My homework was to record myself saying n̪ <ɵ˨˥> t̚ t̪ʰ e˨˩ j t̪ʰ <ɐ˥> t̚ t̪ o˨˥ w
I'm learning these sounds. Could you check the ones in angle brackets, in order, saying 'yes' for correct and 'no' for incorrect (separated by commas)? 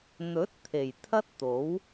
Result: yes, yes